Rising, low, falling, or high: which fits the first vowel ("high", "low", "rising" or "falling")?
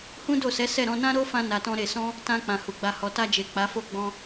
high